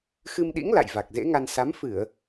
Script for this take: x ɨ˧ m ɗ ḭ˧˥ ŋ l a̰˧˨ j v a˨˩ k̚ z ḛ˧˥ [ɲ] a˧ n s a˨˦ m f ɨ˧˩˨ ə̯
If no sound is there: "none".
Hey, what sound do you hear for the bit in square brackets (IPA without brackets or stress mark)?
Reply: ŋ